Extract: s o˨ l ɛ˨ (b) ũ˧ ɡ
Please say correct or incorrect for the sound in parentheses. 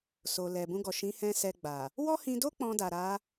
correct